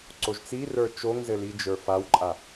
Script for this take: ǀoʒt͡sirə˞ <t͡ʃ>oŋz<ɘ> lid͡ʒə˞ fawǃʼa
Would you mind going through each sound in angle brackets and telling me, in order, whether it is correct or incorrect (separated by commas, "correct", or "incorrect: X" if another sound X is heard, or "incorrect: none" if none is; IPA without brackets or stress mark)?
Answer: correct, correct